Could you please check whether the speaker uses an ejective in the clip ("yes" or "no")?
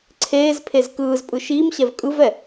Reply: yes